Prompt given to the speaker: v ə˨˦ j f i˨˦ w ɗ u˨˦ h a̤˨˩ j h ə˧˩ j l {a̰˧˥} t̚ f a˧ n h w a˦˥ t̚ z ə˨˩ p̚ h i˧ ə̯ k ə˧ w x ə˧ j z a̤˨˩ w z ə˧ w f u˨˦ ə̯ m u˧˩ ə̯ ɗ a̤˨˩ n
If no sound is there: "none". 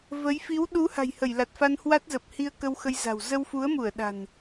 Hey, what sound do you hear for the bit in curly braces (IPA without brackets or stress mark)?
a˨˩